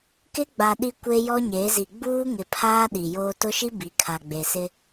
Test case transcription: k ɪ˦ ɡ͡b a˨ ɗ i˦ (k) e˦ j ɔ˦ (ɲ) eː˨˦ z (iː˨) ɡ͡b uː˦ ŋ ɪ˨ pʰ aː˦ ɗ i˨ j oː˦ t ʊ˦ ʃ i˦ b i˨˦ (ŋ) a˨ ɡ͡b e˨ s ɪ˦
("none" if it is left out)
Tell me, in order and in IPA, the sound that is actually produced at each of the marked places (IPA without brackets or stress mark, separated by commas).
kʷ, ɲ, i˨, kʰ